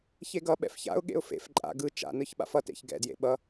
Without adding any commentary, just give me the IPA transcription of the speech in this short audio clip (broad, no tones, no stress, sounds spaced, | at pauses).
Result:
ç e ɡ ʌ ɓ ɛ̰ f ç a̰ ʊ̯ ɠ ḛ ʊ̯ f ḛ f ǃʼ a̰ ɡ ɯ t͡ʃ a̰ n ɯ ç ɓ a̰ f ʌ t ḛ ç ɡ ɛ̰ d j ḛ ɓ ʌ